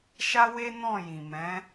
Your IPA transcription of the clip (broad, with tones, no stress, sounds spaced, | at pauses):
ʃ a˦ w e˦ n ɔ̃˦˨ j ĩ˨ m ɛ̃˨˦